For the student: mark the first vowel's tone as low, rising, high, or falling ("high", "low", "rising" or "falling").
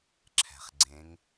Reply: low